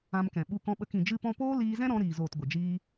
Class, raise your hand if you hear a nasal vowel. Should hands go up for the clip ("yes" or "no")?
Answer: yes